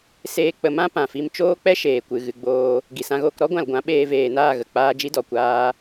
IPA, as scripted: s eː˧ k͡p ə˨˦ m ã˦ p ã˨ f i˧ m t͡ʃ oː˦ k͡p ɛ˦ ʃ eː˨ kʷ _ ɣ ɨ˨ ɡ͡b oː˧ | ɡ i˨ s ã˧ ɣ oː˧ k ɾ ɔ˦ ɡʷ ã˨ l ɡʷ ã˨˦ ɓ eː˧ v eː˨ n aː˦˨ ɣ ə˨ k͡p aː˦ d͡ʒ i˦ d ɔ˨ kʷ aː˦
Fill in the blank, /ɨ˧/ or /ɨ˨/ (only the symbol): ɨ˨